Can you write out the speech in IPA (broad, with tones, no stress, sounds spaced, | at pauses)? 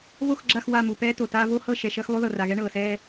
v o˦˨ x ɡ͡ǁ a˦˨ x w a˦˨ m u˨ p ɛː˦ t o˨ t aː˦ v o˦ h ɤ˦˨ ʃ ɛ˨ ʃ əː˦ x lˠ u˦ ð ɤ˨ r a˨ ɣ ɛ˦ ɳ ɤː˨ s ɛː˦